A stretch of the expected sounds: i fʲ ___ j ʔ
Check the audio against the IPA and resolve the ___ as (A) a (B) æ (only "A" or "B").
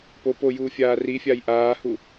A